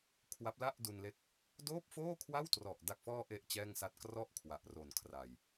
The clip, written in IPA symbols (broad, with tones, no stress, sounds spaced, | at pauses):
kʰ w a˦˥ p̚ l a˥˩ ʔ d u˧ n l e˦˥ k̚ | d oː˥˩ p̚ f oː˥˩ kʰ w a˥˩ w t r ɔ˨˩ ʔ d a˨˩ k̚ f ɔː˧ ʔ e˨˩ ʔ t͡ɕ ɛː˥˩ ŋ s a˥˩ t̚ k r ɔ˥˩ ʔ kʰ w a˨˩ ʔ r o˨˩ n kʰ r a˨˩ j